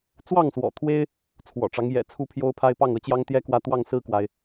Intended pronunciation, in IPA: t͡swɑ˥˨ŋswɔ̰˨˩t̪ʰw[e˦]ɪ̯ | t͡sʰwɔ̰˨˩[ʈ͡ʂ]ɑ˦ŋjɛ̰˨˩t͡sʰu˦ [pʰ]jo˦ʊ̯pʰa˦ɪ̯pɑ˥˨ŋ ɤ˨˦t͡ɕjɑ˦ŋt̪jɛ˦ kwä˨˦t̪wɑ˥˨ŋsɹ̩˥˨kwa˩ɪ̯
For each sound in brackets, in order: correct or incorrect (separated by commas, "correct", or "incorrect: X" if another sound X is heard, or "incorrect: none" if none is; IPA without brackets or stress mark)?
correct, correct, correct